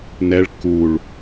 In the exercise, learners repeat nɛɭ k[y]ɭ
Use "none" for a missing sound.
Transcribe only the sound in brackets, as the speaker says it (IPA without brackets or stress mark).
u